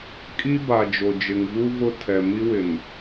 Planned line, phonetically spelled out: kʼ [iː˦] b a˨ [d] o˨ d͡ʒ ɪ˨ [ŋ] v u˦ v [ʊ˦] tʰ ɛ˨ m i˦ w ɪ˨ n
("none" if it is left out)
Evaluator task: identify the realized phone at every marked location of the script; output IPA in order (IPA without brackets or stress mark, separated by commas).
i˦, d͡ʒ, ŋ, ʊ˦